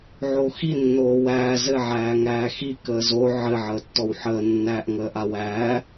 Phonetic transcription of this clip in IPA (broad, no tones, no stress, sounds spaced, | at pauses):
ʕ o x i nː oː w æː z ɘ ʕ æː ŋ æː x i k əː z o ʕ ɘ ʕ əː tː ɔ w ħ əː nː æː ʔ ŋ əː ʔ a w æː